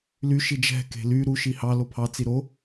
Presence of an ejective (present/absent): absent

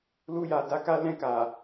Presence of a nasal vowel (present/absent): present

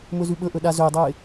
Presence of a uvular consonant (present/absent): absent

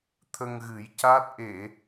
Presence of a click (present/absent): absent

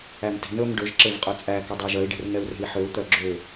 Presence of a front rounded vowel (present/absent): present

